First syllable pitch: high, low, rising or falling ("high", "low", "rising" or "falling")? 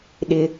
high